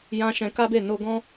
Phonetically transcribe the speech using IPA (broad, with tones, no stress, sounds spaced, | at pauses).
j ã˧ ʃ ɛ̃˧ k a˦ b e˦˨ n o˧ ɡ ɔ̃˦